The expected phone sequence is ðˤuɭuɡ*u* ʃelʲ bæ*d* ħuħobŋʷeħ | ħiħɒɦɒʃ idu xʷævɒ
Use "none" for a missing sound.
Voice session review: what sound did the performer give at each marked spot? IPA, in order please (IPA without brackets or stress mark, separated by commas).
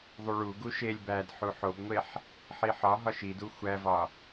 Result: u, d